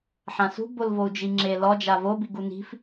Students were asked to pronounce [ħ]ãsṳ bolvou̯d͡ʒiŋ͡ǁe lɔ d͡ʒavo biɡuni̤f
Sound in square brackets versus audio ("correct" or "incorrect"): correct